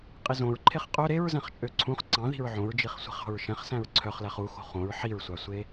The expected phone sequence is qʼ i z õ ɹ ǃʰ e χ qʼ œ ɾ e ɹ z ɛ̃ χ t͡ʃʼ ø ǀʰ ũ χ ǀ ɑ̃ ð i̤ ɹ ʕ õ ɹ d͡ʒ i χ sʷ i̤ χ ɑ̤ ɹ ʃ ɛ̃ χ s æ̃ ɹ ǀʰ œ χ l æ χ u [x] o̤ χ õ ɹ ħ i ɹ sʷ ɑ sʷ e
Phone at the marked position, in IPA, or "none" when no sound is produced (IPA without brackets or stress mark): x